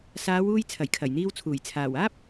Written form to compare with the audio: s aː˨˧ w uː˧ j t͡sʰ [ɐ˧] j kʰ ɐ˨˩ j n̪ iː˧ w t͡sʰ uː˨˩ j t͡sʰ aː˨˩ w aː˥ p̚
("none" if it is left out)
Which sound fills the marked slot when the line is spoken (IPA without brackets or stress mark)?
ɐ˨˩